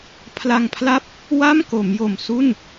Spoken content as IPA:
pʰla˧ŋpʰla˥˩p̚ | wa˥˩mko˩˦m jo˨˩msu˥˩n

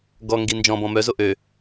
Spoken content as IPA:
ɡɔŋɡi nd͡ʒɔ̃bɔ̃ mœzo ʔø

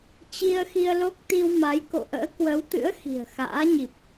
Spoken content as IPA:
t͡ɕi˧ə̯xi˧ə̯ lo˦˥k̚t̪i˧wma˨˦jko̰˧˨ ʔə̰ː˧˥kwə˨˦wt̪ɨ̰˧˥ə̯ xi̤˨˩ə̯xa̰ː˧˥ɲi˨˩p̚

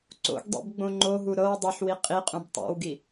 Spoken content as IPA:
ǀo̰ɡdˤḭb ɡ͡bõŋ͡ǃoɦu ɾɤw dˤoħwi qʼiqʼũb tˤo̰wɡi

